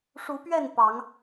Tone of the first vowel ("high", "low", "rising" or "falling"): rising